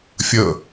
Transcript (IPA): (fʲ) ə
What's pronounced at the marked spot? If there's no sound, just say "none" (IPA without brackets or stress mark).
fʲ